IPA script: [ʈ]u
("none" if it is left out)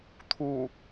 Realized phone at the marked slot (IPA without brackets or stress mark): t̪ʰ